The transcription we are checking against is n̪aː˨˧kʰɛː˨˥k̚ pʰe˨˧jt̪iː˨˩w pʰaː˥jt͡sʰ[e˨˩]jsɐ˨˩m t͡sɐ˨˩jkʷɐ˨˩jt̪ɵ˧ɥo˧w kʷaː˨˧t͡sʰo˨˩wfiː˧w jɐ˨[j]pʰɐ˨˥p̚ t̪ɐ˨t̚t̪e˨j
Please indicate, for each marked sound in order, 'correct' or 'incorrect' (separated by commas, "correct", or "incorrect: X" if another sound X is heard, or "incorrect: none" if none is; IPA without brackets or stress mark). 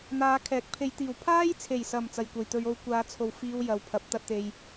correct, incorrect: w